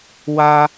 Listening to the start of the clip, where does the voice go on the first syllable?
high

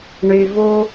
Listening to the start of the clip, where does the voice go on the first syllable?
low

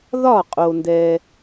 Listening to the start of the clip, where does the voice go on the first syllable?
falling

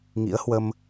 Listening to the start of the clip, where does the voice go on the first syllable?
rising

